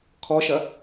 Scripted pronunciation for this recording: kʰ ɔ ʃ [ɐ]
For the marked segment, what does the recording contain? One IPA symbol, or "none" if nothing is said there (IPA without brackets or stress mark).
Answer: ɐ